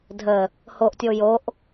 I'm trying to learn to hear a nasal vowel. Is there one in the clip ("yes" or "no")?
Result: no